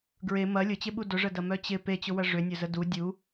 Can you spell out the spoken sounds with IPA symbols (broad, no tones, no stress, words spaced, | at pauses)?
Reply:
ɡɹe mɐ lʲʊt͡ɕɪɓu dʊʐədɐmœ t͡ɕɪ pet͡ɕʊwɐ ʐʏnʲœzə du dʲu